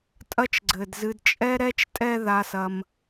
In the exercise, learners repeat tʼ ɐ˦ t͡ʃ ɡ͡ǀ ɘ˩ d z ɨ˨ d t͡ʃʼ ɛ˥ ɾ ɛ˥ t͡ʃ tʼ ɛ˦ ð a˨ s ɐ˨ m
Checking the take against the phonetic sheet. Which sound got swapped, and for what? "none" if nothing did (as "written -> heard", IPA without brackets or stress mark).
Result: none